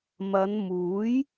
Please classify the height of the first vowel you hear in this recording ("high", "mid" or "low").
low